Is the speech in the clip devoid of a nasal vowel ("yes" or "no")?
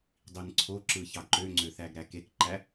yes